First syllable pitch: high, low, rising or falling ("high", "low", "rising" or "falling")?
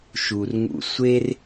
low